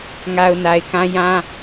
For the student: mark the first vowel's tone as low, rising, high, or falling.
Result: low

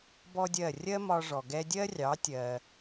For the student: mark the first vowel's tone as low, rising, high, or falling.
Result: high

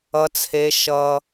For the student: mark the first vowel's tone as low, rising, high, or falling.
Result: high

